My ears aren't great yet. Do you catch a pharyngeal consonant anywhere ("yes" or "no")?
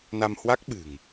no